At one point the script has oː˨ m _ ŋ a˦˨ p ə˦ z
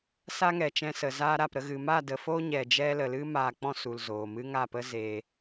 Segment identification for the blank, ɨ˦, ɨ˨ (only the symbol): ɨ˦